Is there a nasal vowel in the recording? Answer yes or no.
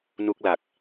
no